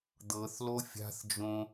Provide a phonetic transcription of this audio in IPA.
d̪ ɤ θ l o fʲ a̤ θ d͡ʒ õ

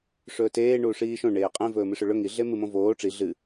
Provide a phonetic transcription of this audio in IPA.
ʂ ɵː t eː ɳ uː ʂ iː ʃ õ ɳ eː qʼ ẽ v ɵː m ɨ ʂ ɵ ɭ ɵ ŋ i ɮ e m ɨ m õ v oː ʈ͡ʂ i ɮ ɨ

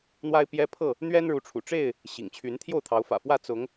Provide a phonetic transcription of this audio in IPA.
n̪ w a˦ ɪ̯ p j ɛ˦ pʰ ɤ˥˨ | n̪ ɥ ɛ˦ n ɻ u˨˦ ʈ͡ʂʰ ṵ˨˩ ʈ͡ʂ e˥˨ ɪ̯ | ɕ ḭ˨˩ ŋ t͡ɕʰ y˨˦ n t̪ʰ j o˥˨ ʊ̯ t̪ʰ ɑ˨˦ ʊ̯ f ä̰˨˩ f w ä˥˨ t͡s ʊ˨˦ ŋ

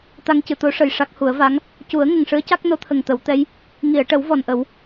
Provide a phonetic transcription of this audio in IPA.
t̪ a˧ ŋ c ɨ˨˩˨ t̪ o˧˥ ʂ ə˨˩ j ʂ a˦˥ k̚ h u˨˩˦ ə̯ v a˧˥ ŋ | c u˨˩˦ ə̯ ŋ ə˨˩ ŋ ʂ ɨ˧˥ ə̯ c a˦˥ k̚ n o˧˥ t̪ʰ ə˨˩ ŋ t̪ ə˨˩˦ w t̪ ɛ˧˥ j | ŋ i˨˩˨ ə̯ ʈ ə˨˩˦ w v ɔ˨˩ n ʔ ə˨˩˦ w

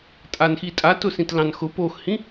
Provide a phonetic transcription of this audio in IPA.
tʼ a n x i tʼ a t ʊ s ĩ t l ɑ̃ n x ʊ p o x h ĩ

